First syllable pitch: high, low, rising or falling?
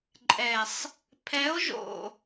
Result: low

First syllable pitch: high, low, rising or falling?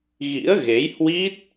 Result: rising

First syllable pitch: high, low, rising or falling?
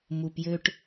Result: low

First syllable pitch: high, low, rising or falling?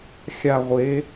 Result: falling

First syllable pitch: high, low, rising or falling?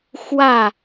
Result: falling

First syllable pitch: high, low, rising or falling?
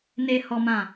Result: low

